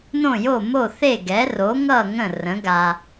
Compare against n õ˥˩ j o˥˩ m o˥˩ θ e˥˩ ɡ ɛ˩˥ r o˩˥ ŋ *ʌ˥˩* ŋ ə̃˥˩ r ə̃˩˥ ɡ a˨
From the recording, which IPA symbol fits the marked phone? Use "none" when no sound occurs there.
ʌ˥˩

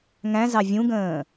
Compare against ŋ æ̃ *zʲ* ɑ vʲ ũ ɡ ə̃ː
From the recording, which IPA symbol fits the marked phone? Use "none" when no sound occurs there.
z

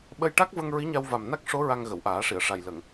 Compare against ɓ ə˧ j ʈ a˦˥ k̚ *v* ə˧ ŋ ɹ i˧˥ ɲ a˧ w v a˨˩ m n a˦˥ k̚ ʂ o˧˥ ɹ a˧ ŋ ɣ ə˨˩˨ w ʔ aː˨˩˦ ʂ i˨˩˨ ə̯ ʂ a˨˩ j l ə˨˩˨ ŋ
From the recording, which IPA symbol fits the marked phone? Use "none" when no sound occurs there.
v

